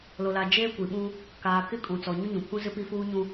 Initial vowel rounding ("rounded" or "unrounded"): rounded